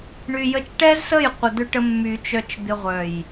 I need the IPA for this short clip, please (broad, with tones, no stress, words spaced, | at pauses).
ɳy˨jə˧t͡ʃʈɛ˦zsə˦˨j qʷə˨ d̪ʏ˧ʈə˧mːy˨ t͡ʃœ˨t͡ʃ d̪ɪ˨ʁʷœ˨j